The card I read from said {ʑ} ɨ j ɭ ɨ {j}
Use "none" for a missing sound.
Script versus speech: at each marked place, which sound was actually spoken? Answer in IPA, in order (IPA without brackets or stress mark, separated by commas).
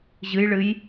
ʑ, j